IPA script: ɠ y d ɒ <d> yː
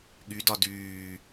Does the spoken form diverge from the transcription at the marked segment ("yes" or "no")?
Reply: no